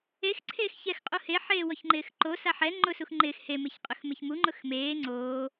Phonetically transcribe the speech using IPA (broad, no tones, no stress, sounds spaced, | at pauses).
e x ǀʰ eː x ç ɛ x qʼ u h e ħ eː w ɔ ç ŋ͡ǃ ɪː x ǃ o s a ħ ɛ ŋ͡ǃ ʊ s u x ŋ͡ǃ ɪː x h e m e ç qʼ ʊ x m e ç m u ŋ͡ǃ ʊ x m eː ŋ͡ǀ oː